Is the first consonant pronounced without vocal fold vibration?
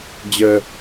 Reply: no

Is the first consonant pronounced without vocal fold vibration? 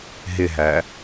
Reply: no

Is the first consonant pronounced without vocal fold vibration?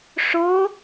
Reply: yes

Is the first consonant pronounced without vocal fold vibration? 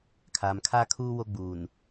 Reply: yes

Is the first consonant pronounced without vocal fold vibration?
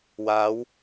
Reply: no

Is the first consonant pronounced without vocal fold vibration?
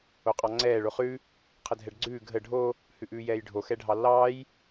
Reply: yes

